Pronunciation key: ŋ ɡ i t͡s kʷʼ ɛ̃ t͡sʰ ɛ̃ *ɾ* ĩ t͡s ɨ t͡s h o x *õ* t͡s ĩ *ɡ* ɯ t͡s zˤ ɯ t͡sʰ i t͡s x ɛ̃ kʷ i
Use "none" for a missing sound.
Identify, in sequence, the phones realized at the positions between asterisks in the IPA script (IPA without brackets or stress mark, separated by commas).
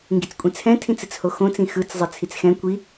tʰ, õ, x